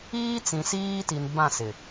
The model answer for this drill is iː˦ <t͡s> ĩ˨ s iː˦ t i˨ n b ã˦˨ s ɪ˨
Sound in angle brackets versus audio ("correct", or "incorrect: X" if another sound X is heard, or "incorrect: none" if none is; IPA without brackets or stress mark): correct